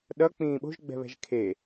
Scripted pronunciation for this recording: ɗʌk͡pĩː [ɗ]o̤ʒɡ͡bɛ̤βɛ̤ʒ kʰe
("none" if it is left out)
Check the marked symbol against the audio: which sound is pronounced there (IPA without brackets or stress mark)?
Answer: ɓ